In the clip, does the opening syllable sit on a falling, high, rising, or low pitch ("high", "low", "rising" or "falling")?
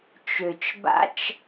low